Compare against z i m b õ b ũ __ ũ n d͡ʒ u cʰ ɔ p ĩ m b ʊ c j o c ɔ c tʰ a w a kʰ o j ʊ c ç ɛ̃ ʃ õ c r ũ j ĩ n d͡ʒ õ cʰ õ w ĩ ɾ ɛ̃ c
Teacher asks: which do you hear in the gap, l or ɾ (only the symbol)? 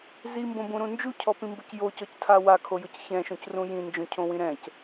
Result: ɾ